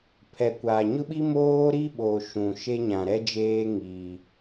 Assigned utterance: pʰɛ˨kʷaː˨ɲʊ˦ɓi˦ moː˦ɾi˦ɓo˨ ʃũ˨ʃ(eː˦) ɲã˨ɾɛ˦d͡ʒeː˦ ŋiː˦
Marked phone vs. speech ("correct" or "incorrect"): incorrect